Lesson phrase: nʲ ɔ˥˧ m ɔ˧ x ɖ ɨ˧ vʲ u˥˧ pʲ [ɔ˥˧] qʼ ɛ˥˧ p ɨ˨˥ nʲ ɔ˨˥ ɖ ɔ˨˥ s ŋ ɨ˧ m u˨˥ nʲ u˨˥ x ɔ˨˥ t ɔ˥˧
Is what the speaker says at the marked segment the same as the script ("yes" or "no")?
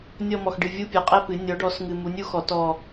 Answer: no